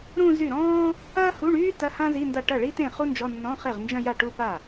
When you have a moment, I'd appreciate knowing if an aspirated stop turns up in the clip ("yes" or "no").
no